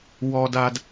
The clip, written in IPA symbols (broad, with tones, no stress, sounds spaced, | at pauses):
w ɔ˨ d a˨ d